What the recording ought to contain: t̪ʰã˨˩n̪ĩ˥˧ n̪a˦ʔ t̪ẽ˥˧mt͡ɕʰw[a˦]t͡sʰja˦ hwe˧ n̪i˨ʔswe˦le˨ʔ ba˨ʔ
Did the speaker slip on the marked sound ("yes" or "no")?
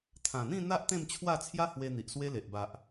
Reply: yes